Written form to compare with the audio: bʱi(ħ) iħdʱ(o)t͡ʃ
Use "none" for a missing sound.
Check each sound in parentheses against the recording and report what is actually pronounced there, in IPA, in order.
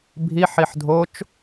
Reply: ħ, o

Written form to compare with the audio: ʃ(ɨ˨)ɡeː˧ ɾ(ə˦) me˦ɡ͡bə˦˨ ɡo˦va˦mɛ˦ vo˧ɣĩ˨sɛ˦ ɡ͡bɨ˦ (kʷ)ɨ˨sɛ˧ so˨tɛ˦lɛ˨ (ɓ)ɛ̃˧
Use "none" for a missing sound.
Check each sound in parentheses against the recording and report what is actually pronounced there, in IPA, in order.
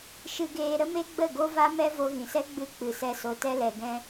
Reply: ɨ˧, ə˦, k͡p, ɡ

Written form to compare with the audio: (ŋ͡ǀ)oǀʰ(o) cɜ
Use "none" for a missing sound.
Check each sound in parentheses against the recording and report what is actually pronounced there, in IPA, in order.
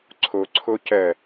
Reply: ǀʰ, o

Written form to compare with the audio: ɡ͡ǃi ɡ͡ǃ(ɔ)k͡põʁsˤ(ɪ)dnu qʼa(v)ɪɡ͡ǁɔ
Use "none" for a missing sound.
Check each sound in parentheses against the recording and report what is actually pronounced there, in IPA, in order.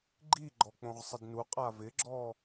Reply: ɔ, ɪ, v

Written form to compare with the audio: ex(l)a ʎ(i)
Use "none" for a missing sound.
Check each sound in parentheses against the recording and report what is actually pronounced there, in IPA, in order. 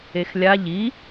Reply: lʲ, i

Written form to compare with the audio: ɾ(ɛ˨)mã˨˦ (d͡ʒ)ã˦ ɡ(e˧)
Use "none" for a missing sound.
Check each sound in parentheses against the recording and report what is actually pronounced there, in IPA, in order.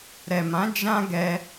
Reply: ɛ˨, d͡ʒ, ɛ˧

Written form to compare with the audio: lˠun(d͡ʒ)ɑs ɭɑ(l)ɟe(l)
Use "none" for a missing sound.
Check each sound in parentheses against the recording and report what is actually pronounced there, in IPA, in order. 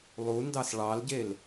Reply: d, l, l

